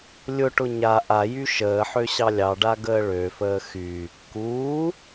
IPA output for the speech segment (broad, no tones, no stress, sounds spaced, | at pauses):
lʲ ʊ ʈ ʊ ɲ a ʔ a j y ʃ əː ħ ø ɕ ɑ lʲ ɑ ɖ a ɡ əː ɭ ø f əː x y | k uː